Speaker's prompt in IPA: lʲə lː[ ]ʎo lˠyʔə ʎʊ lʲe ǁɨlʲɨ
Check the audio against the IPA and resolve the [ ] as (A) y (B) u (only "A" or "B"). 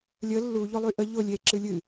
B